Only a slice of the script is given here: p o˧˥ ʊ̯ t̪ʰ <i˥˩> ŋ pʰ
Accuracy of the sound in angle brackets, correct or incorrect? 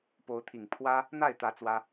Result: incorrect